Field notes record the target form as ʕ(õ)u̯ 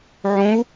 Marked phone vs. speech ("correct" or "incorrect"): correct